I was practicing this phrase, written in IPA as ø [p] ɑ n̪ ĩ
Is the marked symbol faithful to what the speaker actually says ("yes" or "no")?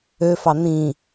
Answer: no